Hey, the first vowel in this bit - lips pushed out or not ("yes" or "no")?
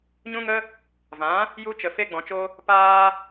yes